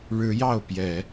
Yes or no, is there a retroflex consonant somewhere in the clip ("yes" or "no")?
yes